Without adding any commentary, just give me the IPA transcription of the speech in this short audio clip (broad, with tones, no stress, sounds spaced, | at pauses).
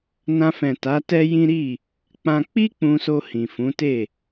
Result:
n ã˧ f ɛ̃˨ t a˨˦ t ɛ˦ j ĩ˦ ɾ i˦˨ | k͡p ã˧ k͡p i˦ k͡p ũ˧ s o˧ h ĩ˨ f ũ˨˦ t e˦˨